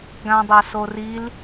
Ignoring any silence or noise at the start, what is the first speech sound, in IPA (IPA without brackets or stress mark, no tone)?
ɡ